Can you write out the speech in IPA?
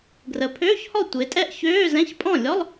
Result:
ɡ r ə˩˧ pʰ øː˧˥˧ ç h ɔ˥˩ tʷ e˩˧ tʼ ɛ˥˩ ʔ ç øː˧˥˧ z ɛ̃˧˥˧ ç pʼ ɔ̃˥˩ lʲ ɔ˧˥˧ lˠ

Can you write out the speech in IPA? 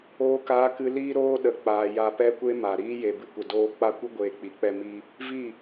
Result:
oː˧ k aː˧ k ɨ˧ l iː˦ ɾ oː˦ ɗ ə˨ k͡p aː˨ j a˨ p ɛ˧ kʷ e˧ m a˨ ɾ iː˦ j e˨ b ɨ˧ kʷ ə˨ d oː˧ k͡p a˦ kʷ ɨ˦ ɡʷ eː˧ k͡p i˨˦ k͡p ɛ˦ m i˦ | v i˦˨

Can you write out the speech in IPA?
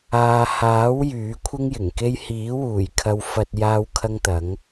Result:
aː˨ h aː˨˥ w j yː˨˥ kʷʰ ɪ˥ ŋ j ɪ˨˩ ŋ k e˥ j h iː˨˥ w uː˨˩ j kʰ ɐ˧ w f ɐ˧ t̚ j aː˥ w kʰ ɐ˥ ŋ t̪ ɐ˨˥ ŋ

